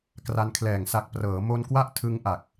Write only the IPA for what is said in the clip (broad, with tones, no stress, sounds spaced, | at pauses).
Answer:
k r a˧ n kʰ l ɛː˨˩ ŋ s a˨˩ k̚ p r ɤː˩˦ m o˧ n k w a˦˥ ʔ tʰ ɯ˧ ŋ ʔ a˨˩ k̚